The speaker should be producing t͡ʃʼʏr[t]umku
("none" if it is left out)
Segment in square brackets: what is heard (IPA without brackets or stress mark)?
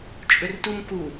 t